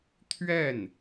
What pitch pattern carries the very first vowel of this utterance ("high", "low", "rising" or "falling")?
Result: falling